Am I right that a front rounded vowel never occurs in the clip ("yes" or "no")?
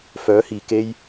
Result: no